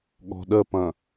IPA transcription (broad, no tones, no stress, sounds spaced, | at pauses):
ɠ ɔ̤ ɗ ə p ɐ̃